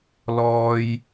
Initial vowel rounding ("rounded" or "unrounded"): rounded